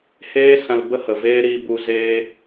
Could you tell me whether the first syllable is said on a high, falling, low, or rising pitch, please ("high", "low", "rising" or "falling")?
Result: high